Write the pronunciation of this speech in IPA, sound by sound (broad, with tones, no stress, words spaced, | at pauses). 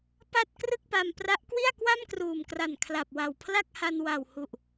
pa˥˩t̚ krɯ˥˩k̚pa˧mpra˦˥ʔkwi˥˩a̯ kwa˥˩mkruː˨˩mkra˨˩n kʰla˨˩p̚wa˨˩wpʰla˥˩k̚ha˧n wa˨˩whu˨˩ʔ